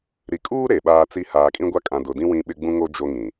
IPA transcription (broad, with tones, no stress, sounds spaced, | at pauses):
ɾ i˨ kʼ uː˦ ɾ e˨ ɓ aː˦ t͡s i˦ h aː˨ kʼ ĩ˦ ɡʷ a˦ kʼ ã˨ d ʊ˨ d ĩ˦ w ĩ˦ ɓ ɪ˦ ɡ͡b ũ˦ ŋ o˦ d͡ʒ o˦ ŋ ĩ˨